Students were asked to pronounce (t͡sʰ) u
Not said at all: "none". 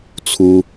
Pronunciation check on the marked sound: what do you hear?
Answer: t͡sʰ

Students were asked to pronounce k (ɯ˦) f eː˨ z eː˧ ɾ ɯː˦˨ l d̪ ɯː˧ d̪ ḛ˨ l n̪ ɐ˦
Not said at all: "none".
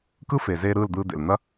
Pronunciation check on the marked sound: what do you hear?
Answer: ɯ˦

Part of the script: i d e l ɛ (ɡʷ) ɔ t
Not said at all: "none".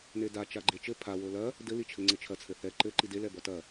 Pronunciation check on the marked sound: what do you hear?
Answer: b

